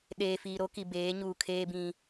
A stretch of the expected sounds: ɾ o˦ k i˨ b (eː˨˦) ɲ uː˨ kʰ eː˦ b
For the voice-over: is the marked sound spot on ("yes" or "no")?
yes